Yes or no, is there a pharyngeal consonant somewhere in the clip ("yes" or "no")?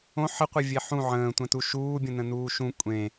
yes